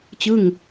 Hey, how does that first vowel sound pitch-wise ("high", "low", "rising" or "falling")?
falling